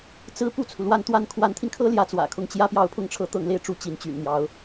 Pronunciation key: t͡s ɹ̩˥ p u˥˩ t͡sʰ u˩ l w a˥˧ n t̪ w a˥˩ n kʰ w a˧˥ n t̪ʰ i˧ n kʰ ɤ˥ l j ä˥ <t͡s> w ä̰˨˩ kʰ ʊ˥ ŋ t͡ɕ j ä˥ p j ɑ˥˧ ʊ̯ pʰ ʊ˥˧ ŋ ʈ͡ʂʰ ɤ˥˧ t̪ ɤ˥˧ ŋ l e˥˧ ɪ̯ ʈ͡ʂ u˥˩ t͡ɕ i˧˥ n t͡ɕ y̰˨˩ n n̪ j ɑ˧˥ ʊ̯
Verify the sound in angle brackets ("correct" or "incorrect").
correct